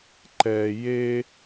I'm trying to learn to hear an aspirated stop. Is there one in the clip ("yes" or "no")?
no